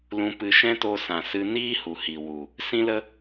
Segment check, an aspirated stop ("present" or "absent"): absent